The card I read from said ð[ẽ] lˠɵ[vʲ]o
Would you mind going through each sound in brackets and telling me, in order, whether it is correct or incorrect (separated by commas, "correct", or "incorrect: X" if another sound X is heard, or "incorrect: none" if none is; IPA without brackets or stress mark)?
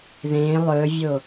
correct, correct